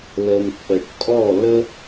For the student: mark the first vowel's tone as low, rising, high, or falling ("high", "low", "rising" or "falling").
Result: low